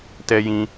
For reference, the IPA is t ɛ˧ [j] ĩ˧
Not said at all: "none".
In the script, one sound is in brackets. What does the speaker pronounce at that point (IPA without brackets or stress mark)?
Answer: j